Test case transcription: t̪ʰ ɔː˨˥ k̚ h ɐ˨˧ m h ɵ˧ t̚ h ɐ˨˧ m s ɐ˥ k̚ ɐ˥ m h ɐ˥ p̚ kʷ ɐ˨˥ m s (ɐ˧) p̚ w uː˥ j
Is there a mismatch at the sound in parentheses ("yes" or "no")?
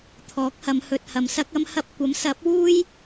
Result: yes